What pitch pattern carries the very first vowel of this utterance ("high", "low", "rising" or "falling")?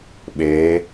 rising